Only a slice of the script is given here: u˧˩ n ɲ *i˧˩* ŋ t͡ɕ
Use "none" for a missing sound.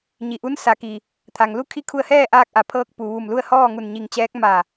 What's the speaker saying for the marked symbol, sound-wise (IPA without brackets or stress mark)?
i˧˩